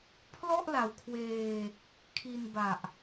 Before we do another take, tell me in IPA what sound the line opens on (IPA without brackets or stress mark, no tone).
pʰ